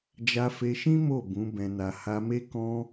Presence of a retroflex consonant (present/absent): absent